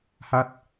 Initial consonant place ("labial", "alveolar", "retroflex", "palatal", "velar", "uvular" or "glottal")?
glottal